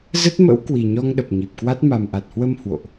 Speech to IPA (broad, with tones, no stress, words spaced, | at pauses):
zə˦˥t̚mə̰˧˥w kwi˨˩ɲɔ˧ŋ ɗə˨˩p̚ɲi˨˩p̚kwa˦˥t̚ ma˨˩mʔa˨˩t̚hwə˧m hwo̰˧˨ʔ